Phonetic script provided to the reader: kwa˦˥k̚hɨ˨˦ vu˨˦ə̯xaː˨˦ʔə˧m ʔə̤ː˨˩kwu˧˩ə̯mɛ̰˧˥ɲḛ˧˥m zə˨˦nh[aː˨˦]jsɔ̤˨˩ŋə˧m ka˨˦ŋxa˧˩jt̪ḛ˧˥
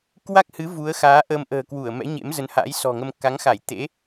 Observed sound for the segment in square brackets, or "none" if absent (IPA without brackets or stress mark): a̰ː˧˥